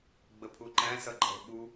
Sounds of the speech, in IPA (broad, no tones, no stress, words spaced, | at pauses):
ɡ͡bəpʰuǃæ̃ sʌǃʼɛ̤ɓu